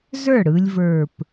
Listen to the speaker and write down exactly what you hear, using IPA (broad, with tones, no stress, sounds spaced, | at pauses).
z ə˞˥˩ ɽ ɯ˧ lʲ v ə˞˨˩ p